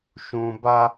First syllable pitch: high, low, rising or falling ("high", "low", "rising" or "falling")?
high